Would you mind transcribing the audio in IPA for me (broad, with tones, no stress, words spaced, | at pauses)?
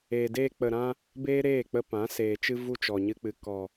e˨de˧k͡pə˨ ɾã˦ | beː˦ɾeː˦˨k͡pə˧pã˨˦ seː˨t͡ʃɨ˦vu˦ t͡ʃɔ˨ɲɨ˧k͡pɨ˨ kɔ˨